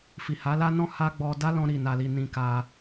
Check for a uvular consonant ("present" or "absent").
absent